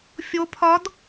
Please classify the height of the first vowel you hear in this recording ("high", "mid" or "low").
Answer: mid